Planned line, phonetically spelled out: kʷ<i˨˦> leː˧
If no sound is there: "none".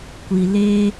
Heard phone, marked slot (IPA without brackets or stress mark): i˨